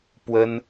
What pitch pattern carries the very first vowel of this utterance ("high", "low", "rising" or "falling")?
high